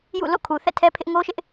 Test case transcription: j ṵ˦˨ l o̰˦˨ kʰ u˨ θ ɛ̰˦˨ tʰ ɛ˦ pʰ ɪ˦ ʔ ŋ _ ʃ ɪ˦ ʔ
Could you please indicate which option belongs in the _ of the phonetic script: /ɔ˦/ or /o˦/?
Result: o˦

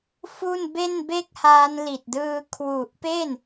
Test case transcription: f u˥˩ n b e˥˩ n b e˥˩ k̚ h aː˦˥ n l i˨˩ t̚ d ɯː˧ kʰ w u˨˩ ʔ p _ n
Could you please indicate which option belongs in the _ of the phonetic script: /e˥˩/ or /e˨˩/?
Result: e˥˩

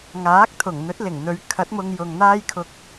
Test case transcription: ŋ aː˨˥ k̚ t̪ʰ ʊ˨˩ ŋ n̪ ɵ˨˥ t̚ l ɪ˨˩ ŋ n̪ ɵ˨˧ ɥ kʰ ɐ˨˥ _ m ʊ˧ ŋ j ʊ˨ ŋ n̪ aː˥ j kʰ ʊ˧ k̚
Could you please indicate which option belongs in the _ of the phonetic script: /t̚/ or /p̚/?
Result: t̚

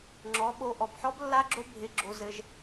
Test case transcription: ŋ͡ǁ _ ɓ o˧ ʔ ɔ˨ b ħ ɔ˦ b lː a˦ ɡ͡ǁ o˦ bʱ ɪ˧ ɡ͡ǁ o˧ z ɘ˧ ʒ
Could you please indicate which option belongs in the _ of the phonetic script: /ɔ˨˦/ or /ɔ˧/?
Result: ɔ˨˦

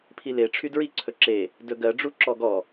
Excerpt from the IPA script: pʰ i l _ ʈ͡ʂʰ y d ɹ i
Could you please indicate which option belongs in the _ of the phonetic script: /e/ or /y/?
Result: e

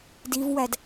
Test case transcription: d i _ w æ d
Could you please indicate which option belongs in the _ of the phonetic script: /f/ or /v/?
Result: v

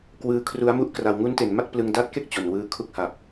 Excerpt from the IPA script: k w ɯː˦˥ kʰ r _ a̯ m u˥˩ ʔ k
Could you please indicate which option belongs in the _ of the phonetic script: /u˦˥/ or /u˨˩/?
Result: u˦˥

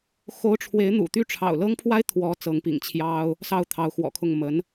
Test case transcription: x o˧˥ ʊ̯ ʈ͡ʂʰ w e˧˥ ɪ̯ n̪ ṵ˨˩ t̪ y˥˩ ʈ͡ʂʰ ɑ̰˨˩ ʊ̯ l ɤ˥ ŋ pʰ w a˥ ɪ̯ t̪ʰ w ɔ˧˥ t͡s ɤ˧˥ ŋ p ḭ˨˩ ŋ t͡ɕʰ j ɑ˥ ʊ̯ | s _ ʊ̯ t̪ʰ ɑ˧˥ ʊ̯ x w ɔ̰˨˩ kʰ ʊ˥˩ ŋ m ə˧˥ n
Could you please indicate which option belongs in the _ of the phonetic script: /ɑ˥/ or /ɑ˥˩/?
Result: ɑ˥˩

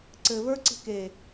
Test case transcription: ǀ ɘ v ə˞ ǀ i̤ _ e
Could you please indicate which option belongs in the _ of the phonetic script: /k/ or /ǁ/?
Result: k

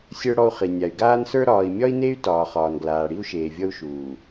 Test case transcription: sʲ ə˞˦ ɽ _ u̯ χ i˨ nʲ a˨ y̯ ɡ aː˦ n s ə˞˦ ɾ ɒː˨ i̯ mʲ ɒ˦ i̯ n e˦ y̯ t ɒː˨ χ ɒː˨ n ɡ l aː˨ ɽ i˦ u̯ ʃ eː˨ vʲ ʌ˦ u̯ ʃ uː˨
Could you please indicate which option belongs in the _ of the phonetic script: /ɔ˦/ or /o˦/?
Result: ɔ˦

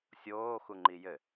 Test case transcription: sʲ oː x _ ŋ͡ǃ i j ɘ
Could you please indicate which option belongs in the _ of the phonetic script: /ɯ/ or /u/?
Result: u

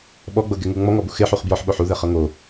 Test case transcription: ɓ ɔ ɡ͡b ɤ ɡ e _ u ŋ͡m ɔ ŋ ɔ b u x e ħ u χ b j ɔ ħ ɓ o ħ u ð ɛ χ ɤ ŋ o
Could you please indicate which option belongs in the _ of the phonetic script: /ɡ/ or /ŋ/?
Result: ŋ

